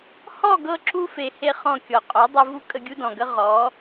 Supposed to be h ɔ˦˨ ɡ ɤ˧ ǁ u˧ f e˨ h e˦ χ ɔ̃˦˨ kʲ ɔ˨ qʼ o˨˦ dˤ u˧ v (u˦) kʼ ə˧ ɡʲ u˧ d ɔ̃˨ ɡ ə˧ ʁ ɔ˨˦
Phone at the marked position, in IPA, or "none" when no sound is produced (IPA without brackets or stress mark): u˧